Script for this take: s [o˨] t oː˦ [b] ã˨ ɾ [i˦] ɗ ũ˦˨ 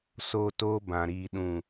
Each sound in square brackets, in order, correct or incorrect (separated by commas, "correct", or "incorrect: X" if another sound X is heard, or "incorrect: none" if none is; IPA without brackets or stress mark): correct, correct, incorrect: iː˦